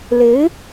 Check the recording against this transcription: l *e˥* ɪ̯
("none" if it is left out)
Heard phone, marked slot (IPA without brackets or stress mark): e˧˥